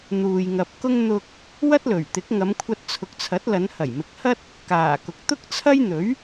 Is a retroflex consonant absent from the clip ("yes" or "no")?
yes